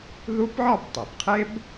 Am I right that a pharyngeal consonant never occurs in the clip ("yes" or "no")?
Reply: no